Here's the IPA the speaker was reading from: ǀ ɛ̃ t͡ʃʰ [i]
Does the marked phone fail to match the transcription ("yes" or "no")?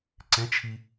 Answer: no